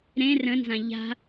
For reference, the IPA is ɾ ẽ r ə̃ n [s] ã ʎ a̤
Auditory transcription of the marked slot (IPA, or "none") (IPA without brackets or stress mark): z